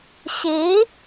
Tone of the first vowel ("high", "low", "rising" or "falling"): rising